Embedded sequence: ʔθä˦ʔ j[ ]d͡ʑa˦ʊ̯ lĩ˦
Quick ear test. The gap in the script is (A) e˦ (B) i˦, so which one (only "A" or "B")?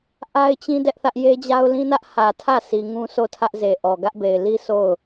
A